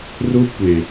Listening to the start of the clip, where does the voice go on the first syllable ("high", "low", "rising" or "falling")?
high